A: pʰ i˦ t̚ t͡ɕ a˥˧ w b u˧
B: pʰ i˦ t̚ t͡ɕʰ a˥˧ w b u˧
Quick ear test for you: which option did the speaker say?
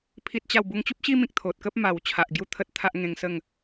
A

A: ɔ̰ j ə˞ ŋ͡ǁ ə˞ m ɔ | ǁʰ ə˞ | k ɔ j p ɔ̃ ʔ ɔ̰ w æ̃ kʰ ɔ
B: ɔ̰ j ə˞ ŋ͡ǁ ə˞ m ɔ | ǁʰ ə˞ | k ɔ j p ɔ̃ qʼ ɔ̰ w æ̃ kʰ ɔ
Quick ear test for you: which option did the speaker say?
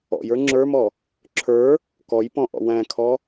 A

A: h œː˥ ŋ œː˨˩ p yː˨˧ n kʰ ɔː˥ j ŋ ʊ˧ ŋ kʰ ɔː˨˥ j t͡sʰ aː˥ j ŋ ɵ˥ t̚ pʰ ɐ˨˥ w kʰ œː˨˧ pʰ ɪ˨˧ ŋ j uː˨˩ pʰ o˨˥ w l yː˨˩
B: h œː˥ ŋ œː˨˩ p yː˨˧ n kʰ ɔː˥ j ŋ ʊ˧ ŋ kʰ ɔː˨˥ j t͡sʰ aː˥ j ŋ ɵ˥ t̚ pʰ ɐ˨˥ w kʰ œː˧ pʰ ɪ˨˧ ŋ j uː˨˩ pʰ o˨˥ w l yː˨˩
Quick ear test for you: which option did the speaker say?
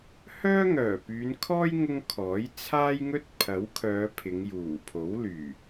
A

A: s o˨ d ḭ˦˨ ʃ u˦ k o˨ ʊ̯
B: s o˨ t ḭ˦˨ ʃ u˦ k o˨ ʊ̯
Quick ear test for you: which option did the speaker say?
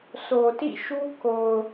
B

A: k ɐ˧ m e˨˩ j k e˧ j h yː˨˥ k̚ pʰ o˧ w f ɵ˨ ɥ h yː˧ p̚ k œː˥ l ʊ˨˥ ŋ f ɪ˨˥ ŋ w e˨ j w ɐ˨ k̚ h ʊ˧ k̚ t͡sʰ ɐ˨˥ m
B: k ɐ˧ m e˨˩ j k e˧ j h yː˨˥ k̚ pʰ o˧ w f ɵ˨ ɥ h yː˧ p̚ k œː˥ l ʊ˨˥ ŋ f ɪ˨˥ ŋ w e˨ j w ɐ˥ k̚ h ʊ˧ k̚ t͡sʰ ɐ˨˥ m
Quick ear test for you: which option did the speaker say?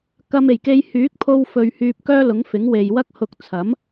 B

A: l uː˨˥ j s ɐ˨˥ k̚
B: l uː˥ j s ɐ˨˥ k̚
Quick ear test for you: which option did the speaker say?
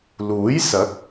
A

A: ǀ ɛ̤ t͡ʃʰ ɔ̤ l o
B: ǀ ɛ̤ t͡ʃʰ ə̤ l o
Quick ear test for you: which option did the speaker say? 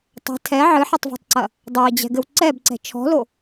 A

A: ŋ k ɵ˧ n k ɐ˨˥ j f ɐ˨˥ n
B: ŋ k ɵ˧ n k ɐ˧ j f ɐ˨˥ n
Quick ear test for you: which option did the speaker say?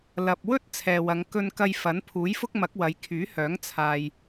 B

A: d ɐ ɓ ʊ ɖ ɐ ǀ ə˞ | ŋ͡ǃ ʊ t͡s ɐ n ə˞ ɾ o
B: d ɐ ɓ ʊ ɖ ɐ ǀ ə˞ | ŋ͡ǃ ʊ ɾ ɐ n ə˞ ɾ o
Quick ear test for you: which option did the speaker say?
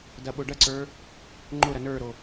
B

